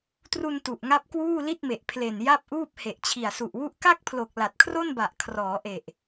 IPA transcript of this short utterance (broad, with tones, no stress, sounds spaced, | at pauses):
t r u˧ n t u˨˩ ʔ ŋ a˦˥ p̚ k w uː˥˩ l i˥˩ t̚ m e˨˩ ʔ pʰ l e˨˩ n j a˥˩ p̚ ʔ uː˥˩ p̚ h e˨˩ ʔ t͡ɕʰ i˨˩ a̯ s u˨˩ ʔ w u˥˩ ʔ k a˥˩ k̚ pʰ l o˨˩ k̚ l a˨˩ t̚ kʰ r o˥˩ n b a˨˩ ʔ kʰ r ɔː˩˦ ʔ e˨˩ ʔ